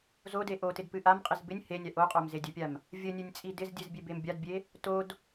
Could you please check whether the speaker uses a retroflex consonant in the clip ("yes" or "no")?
no